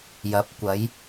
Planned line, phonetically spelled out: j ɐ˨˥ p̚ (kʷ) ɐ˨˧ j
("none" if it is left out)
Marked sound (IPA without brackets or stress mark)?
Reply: kʷ